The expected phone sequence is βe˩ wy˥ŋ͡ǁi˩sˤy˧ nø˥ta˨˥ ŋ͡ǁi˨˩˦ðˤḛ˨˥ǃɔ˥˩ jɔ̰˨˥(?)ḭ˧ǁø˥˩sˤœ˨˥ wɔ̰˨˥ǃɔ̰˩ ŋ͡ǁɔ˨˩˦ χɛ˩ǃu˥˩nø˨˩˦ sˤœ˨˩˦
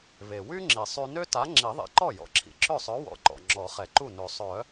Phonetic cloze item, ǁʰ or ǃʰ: ǁʰ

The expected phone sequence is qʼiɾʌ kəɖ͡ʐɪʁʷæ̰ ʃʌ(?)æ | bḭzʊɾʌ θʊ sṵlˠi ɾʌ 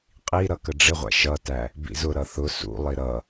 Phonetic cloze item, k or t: t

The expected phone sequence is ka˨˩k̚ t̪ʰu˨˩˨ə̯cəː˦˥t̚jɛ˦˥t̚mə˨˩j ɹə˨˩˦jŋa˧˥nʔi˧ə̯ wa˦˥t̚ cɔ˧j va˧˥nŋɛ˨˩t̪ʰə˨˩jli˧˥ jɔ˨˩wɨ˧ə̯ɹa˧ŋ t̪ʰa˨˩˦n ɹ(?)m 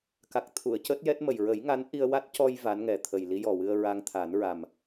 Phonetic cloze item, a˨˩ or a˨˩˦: a˨˩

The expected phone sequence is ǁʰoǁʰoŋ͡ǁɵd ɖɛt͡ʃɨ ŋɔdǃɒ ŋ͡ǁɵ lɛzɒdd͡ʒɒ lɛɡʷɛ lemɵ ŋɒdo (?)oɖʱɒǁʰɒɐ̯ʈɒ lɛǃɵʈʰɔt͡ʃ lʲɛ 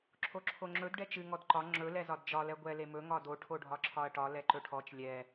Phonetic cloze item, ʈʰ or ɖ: ʈʰ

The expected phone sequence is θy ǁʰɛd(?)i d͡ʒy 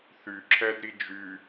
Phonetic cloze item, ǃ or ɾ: ɾ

